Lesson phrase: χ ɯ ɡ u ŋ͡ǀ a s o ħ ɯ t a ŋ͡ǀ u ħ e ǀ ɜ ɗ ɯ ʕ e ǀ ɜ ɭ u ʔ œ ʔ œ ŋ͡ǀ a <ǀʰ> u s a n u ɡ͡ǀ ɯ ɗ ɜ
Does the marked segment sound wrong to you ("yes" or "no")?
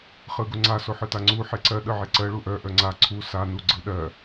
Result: no